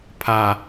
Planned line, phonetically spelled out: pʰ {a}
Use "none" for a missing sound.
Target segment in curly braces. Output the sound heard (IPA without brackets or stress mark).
a